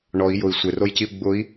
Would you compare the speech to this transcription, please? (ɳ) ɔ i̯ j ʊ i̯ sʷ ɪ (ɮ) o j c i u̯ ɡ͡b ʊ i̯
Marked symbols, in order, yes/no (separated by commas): yes, no